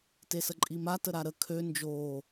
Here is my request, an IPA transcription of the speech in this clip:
t e s ə ǃʼ i m a t ə ɾ a ɾ ə kʰ ø n d͡ʒ oː

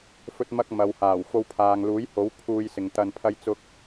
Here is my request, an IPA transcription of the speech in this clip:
f ɵ˧ t̚ m ɐ˧ k̚ m ɐ˨ w h aː˨˩ w f o˧ w pʰ aː˨ ŋ l uː˨˥ j h o˨˥ w pʰ uː˧ j s ɪ˨ ŋ t̪ ɐ˧ n pʰ ɐ˧ j t͡s ʊ˧ k̚

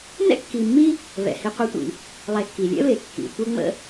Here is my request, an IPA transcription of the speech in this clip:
n ɛ̰˥ kː i˨ mː i˥ | β ɛ̰˩ h i˨ qʷ i˨ tʷ ḭ˨ | lˠ ɛ˨ kː i˩ lʲ ɛ̰˥ β e˩ kː ḭ˩ tʷ ə˦ ŋ͡m ə̰˦

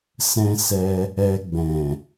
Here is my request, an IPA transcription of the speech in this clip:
s ɛ̃˧ s ɛ˧ | ɛ˧ ɡ͡b ɛ̃˨

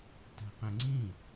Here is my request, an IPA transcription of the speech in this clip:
t ɛ̤ q ẽ ŋ͡ǀ ĩ

